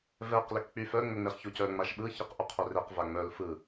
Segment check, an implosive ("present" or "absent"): present